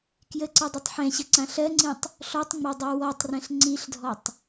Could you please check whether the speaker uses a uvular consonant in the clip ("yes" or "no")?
no